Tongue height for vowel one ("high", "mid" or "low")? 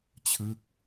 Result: high